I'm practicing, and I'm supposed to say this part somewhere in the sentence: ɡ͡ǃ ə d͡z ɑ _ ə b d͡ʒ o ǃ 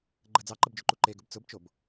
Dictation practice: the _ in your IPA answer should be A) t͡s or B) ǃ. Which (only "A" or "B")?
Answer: B